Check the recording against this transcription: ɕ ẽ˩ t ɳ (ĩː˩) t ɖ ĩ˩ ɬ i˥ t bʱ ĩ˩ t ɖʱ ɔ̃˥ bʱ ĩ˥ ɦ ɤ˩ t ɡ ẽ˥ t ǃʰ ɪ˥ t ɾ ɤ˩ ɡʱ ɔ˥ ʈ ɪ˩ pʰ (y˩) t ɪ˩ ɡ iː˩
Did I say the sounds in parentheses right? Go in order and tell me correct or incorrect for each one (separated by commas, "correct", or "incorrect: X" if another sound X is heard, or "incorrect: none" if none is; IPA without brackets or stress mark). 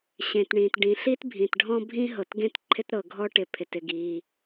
correct, incorrect: ɪ˩